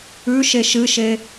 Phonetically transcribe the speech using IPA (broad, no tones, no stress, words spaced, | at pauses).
ʉʃe ʃɨʃe